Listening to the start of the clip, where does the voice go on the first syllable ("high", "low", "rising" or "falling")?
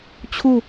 falling